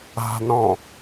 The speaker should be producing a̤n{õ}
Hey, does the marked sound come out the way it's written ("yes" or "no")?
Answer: no